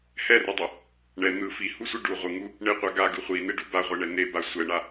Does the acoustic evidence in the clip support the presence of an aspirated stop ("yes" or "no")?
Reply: no